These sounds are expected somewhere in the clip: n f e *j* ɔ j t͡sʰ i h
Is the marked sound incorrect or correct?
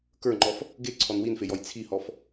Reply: correct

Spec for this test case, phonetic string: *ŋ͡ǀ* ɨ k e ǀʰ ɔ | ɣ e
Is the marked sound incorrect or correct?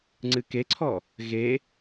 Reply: correct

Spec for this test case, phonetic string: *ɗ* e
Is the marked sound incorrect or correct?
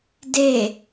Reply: incorrect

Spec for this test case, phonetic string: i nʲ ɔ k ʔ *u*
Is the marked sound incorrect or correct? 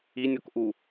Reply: correct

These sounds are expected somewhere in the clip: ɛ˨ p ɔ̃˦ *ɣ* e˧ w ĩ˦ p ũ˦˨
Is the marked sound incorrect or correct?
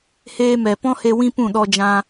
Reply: incorrect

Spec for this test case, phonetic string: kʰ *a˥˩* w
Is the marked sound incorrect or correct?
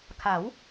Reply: incorrect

